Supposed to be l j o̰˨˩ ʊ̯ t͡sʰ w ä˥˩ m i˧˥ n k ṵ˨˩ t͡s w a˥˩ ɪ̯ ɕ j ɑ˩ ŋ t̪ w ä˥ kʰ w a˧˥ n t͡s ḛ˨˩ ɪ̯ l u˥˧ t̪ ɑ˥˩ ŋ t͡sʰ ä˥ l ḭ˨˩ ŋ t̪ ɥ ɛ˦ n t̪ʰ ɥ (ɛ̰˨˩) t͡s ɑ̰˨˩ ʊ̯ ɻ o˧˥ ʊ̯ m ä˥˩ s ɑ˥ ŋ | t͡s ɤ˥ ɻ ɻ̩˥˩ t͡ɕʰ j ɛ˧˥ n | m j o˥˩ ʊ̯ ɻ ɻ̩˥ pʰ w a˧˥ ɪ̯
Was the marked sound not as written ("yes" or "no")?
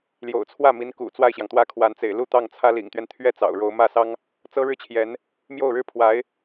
yes